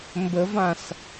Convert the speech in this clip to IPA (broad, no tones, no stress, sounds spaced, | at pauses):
m b ə v ã s